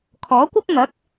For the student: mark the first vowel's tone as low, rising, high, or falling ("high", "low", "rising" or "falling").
rising